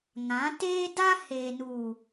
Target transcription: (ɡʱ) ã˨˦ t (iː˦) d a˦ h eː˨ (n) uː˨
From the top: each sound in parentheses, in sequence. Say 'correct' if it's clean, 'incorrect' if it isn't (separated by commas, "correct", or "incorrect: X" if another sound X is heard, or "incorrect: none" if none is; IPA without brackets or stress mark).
incorrect: ŋ, incorrect: eː˦, correct